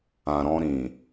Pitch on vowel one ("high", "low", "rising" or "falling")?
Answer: low